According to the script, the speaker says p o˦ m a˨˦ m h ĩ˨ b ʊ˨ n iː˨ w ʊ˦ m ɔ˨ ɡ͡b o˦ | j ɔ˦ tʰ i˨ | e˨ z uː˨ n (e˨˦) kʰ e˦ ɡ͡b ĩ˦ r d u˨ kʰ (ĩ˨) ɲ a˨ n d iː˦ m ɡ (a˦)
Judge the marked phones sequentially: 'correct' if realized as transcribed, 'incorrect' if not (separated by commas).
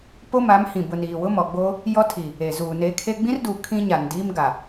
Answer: correct, incorrect, incorrect